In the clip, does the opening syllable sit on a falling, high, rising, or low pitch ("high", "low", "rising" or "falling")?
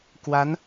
rising